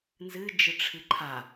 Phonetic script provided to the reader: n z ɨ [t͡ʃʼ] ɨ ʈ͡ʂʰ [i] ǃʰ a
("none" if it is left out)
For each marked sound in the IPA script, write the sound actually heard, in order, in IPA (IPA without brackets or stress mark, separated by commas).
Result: d͡ʒ, ɨ